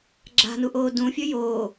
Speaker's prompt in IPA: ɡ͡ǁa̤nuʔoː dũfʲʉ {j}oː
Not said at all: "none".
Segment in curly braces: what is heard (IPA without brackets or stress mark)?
j